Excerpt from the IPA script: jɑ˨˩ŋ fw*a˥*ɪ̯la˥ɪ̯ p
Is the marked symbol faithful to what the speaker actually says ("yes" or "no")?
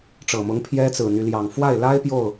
no